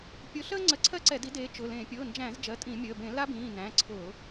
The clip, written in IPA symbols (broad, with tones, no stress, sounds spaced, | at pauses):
pʲ ʊ˨˦ ɬ əː˥ ŋ͡ǀ ə˨˦ ǀʰ ɜ˥ ǀ ɛ˧˩˧ d i˨˦ d eː˨˦ t͡ʃ ʊ˩˧˩ l ẽ˧˩˧ pʲ ʊː˩˧˩ n d͡ʒ æ̃˧˩˧ z d͡ʒ ɜ˩˧˩ tʼ ĩ˧˩˧ mʲ əː˩˧˩ b ẽ˧˩˧ l a˥ b ĩː˩˧˩ n æ̃˩˧˩ ǀʰ ʊː˧˩˧